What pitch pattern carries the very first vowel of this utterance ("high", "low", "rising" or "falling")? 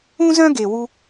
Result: high